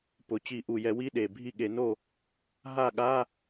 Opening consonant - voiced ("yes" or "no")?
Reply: no